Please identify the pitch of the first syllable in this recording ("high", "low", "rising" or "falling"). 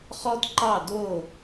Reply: high